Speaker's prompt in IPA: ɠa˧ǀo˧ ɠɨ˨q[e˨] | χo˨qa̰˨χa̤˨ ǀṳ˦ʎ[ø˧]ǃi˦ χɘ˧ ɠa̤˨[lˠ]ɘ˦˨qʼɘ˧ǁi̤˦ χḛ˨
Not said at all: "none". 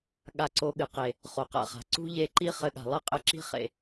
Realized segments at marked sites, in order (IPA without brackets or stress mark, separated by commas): e˨, e˧, lˠ